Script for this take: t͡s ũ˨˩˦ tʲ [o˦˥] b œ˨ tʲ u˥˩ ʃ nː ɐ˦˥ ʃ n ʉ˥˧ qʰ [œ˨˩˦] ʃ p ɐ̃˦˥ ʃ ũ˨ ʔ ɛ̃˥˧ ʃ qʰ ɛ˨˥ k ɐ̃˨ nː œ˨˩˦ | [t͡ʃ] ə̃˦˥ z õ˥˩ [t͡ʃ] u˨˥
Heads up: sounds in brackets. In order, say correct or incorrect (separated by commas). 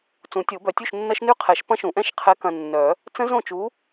incorrect, incorrect, incorrect, correct